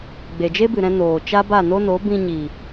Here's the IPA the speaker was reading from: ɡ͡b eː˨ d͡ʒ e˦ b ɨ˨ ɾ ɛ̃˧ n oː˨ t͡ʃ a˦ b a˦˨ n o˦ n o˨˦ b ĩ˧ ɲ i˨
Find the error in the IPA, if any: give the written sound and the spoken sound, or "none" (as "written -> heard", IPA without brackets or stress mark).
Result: eː˨ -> e˨